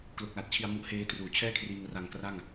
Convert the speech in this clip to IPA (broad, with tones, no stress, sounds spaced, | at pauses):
k l o˨˩ k̚ l a˨˩ t̚ t͡ɕʰ i˧ a̯ m u˦˥ ʔ h eː˦˥ t r uː˩˦ t͡ɕʰ ɛː˥˩ kʰ r iː˧ ŋ r a˧ ŋ k r a˥˩ ŋ